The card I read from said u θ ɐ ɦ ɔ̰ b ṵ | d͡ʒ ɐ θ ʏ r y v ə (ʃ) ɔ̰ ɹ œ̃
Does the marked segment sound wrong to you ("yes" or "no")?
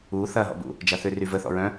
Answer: yes